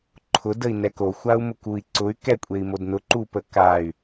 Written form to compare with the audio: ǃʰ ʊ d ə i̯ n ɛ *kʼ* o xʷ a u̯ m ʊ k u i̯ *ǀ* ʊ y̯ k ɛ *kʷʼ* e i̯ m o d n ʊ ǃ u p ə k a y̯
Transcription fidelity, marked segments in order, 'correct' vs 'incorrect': incorrect: k, correct, correct

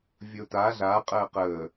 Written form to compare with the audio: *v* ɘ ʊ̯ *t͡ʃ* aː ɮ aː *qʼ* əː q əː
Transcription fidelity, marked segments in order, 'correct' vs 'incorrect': incorrect: vʲ, incorrect: t, correct

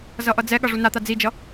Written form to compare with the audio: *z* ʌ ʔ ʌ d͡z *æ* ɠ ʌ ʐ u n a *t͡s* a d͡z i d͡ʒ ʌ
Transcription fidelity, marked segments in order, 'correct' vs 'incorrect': correct, incorrect: ɛ, incorrect: t̪

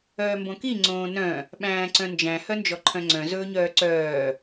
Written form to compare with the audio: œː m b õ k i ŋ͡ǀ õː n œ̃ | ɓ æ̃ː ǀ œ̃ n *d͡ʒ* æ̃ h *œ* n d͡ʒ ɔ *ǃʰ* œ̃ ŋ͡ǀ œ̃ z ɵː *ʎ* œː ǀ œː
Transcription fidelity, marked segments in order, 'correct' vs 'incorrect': correct, correct, correct, incorrect: ɲ

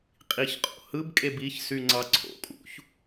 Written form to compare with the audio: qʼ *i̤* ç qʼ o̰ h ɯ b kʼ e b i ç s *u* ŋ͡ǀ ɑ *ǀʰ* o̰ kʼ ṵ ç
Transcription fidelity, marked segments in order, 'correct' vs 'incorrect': incorrect: i, incorrect: y, correct

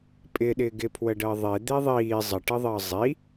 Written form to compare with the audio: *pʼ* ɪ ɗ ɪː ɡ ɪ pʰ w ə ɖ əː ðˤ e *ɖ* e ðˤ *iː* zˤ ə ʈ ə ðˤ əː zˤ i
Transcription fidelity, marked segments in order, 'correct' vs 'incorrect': correct, incorrect: d̪, correct

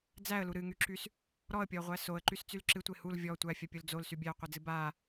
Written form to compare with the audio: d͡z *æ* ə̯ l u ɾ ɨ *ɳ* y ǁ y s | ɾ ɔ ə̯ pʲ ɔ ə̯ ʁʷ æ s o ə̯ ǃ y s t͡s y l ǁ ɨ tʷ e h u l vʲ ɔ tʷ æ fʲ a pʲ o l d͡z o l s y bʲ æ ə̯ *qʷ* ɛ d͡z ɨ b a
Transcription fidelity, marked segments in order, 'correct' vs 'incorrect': correct, incorrect: ŋ, correct

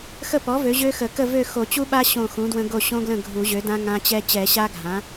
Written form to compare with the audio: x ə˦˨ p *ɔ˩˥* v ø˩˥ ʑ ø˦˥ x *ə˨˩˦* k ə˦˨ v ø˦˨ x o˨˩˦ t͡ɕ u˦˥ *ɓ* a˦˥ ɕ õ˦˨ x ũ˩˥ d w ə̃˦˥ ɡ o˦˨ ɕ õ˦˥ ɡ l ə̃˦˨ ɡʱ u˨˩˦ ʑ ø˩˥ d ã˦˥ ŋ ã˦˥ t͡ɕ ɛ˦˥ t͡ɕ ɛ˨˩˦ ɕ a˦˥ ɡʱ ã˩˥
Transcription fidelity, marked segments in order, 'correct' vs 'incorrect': correct, correct, correct

